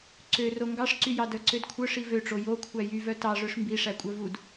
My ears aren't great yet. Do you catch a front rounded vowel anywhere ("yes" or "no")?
yes